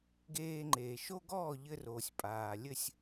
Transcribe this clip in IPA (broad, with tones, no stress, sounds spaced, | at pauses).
ɡ eː˧ ŋ͡ǃ eː˩ ʃ o˥ ɡ ɔː˥˩ ʎ ɘ˧ r oː˩ sʲ pʼ aː˩ lʲ ɘ˥˩ sʲ